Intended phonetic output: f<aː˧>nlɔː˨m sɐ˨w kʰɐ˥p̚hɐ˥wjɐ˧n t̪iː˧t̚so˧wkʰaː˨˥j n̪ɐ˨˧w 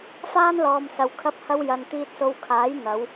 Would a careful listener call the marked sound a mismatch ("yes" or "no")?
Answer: yes